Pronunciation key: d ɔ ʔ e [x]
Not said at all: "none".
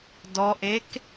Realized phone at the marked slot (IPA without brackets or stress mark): k